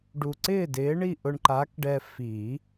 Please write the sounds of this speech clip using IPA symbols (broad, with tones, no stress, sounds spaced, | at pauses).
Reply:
ɖ u˨˩ ǀ ɪː˥˨ d ɪː˨˥ ɳ i˥˨ ʔ ʊ˧ ɳ ǃ a˨˥ k ɖ ɛ˧ f i˨˩˦